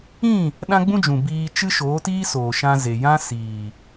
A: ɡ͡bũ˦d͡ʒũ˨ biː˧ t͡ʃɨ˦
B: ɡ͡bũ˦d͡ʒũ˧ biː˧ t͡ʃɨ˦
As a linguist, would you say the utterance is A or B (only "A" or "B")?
A